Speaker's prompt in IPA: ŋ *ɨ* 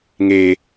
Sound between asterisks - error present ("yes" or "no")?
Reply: yes